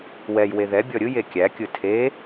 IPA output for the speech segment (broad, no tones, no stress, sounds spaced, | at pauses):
w ɛ j w e ð ɛ bʲ ɔ ɾʲ ɯ j e kʲ æ kʲ ɯ tʰ e